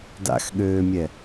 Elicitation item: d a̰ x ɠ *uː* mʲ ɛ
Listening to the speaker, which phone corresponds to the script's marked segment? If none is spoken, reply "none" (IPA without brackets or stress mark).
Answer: øː